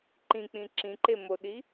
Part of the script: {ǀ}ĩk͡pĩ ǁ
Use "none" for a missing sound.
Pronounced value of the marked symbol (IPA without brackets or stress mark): ǃ